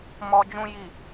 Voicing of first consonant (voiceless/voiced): voiced